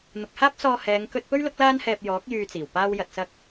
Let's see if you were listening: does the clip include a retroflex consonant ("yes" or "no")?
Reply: no